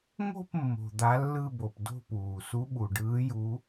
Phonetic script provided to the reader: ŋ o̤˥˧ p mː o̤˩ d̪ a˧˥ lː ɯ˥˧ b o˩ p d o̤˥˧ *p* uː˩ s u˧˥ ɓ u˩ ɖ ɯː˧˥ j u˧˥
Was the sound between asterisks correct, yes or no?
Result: yes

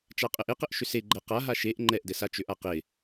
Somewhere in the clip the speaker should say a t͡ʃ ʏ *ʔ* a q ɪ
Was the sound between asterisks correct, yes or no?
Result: yes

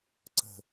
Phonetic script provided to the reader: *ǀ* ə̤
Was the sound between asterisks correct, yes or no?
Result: yes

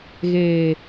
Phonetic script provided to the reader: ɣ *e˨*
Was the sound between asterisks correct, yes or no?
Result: no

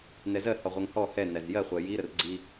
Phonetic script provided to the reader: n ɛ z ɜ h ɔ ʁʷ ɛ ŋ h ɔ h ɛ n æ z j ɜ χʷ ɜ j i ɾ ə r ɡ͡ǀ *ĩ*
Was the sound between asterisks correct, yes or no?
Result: no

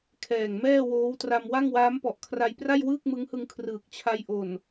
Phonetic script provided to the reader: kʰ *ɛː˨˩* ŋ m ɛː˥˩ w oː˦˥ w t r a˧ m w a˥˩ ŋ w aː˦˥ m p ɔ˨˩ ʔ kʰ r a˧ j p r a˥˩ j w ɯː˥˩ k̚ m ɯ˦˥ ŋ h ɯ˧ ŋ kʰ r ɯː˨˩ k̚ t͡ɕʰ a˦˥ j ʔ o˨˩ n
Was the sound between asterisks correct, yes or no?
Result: yes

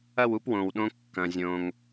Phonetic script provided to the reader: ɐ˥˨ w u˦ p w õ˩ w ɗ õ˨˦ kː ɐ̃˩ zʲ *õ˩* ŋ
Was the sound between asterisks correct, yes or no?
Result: yes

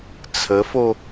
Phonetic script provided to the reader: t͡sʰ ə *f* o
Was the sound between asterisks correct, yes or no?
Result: yes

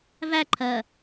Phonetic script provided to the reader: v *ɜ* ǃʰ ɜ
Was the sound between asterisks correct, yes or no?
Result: no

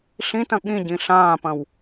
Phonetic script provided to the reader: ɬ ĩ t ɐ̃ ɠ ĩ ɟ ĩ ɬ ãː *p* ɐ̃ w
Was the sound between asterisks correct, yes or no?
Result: yes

